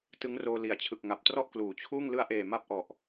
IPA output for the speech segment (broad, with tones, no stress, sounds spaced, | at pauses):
t ɯ˦˥ ŋ r oː˧ l i˨˩ a̯ t͡ɕʰ ɯ˨˩ k̚ ŋ a˨˩ p̚ t r ɔ˥˩ ʔ k l uː˩˦ t͡ɕʰ uː˥˩ ŋ l ɯ˧ a̯ ʔ eː˨˩ m a˥˩ p̚ ʔ ɔ˨˩ ʔ